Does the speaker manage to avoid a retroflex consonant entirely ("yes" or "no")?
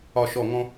yes